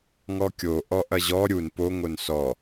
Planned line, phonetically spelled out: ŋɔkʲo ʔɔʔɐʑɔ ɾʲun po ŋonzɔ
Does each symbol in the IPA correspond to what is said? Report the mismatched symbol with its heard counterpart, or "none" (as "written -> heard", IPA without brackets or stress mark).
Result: z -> s